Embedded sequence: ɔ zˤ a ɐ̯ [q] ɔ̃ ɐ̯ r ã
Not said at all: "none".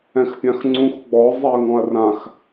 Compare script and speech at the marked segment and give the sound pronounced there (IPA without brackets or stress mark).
ŋ